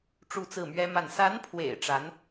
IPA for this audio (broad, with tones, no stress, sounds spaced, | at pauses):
ʈ͡ʂ u˥˧ t͡s ɹ̩˥˩ m ɥ ɛ˥ m a˥˩ n s a˧˥ n pʰ w ḛ˨˩ ɪ̯ ʈ͡ʂ a˧˥ n